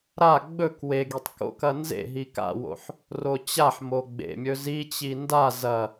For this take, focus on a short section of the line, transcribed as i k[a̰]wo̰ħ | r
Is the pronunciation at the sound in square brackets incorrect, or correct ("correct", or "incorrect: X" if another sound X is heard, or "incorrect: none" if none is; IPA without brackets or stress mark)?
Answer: correct